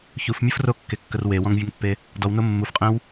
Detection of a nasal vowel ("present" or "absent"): present